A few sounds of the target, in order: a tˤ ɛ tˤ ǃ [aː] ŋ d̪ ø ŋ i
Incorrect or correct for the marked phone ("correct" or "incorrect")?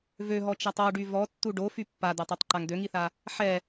incorrect